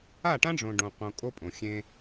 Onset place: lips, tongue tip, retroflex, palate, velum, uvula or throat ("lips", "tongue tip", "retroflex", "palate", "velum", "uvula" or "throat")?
retroflex